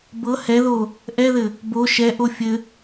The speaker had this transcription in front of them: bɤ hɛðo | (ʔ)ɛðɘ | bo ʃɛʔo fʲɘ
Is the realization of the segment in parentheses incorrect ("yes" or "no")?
no